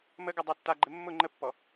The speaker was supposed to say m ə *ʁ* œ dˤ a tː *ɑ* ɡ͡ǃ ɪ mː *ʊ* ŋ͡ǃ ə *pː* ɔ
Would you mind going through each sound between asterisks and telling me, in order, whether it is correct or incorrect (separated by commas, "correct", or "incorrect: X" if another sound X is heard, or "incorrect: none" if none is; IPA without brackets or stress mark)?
incorrect: ɡ, incorrect: a, correct, correct